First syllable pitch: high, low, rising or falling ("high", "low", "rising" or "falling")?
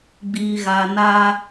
low